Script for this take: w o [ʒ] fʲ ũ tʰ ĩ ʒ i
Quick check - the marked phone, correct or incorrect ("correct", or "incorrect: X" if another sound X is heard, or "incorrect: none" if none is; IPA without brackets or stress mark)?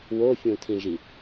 incorrect: none